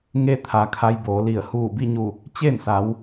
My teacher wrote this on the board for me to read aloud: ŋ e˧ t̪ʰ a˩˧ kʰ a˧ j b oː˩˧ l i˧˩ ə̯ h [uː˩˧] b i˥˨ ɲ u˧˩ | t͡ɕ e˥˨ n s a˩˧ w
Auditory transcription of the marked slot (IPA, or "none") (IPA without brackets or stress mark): uː˧˩